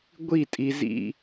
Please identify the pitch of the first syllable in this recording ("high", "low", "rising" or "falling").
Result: falling